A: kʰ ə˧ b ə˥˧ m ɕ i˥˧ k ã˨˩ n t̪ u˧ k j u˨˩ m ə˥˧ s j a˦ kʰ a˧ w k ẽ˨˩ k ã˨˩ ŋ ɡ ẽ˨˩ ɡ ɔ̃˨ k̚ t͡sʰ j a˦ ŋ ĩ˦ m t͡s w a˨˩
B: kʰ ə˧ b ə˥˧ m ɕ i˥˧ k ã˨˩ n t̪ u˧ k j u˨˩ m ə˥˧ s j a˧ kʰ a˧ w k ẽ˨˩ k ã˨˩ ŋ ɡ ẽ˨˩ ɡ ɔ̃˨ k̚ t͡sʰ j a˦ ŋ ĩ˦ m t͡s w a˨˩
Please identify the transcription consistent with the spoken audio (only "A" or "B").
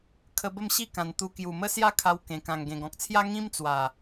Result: A